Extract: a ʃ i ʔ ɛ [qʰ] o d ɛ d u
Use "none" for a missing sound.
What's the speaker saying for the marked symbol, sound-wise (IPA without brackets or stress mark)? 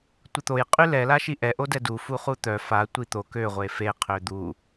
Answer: ʔ